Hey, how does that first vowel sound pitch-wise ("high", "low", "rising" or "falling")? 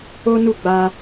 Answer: high